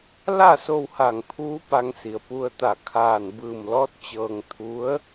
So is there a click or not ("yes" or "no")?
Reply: no